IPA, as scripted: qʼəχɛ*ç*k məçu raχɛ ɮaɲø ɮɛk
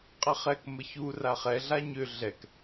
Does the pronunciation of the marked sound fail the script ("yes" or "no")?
yes